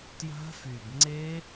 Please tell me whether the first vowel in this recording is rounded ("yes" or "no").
no